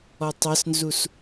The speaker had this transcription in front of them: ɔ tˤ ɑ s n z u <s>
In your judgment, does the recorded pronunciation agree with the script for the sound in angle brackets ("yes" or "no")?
yes